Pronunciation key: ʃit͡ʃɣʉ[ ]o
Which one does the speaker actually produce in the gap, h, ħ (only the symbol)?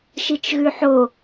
ħ